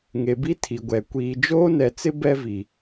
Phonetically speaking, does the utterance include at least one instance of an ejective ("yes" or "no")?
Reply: no